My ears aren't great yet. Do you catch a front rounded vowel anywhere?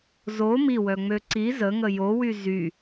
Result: yes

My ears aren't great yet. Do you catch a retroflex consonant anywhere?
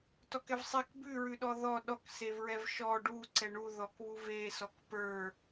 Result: yes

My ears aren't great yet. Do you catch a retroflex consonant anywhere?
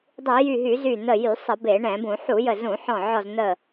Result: yes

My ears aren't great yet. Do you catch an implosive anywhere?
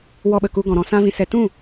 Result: yes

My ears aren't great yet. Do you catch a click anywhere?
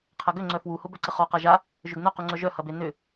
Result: yes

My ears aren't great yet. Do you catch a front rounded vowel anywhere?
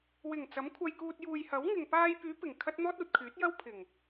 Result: yes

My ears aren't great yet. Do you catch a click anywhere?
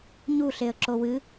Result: yes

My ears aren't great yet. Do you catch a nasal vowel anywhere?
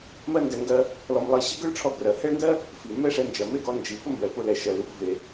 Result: no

